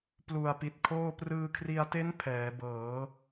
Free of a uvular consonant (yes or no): yes